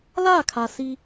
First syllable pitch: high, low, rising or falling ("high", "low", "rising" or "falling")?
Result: falling